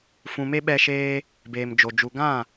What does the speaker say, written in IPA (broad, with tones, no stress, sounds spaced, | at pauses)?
f ũ˨ m e˧ ɓ ɛ˧ ʃ eː˧ | b eː˨ m d͡ʒ o˨ d͡ʒ u˨ ɡ ã˦˨